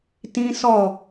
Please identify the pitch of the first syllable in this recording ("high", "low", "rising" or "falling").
high